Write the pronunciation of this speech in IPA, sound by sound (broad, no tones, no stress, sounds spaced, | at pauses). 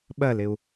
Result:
ɓ ɜ l ɪ u̯